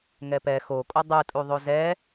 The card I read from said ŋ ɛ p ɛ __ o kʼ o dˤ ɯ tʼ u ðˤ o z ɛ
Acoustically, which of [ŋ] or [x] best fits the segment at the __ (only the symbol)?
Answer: x